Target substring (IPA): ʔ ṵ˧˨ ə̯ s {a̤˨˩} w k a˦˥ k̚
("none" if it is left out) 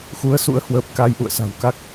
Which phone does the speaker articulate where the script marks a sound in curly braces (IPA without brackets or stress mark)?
a̤˨˩